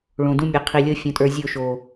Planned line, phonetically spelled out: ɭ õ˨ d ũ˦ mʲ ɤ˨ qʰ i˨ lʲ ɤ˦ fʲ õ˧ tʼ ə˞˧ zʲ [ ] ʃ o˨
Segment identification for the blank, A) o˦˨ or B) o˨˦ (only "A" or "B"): A